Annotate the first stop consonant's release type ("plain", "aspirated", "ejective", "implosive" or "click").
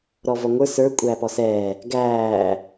ejective